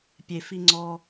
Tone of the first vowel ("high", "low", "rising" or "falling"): low